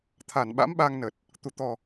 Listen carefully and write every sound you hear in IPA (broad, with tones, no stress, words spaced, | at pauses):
t̪ʰa˧˩nɓa̰˧˥mɓa˧ŋnə˨˩t̚ | t̪u˧˩t̪ɔ˨˩